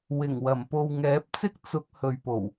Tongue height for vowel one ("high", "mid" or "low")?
high